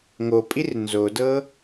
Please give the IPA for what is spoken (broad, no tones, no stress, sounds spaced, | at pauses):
ŋ o pʼ i r n z o d ɤ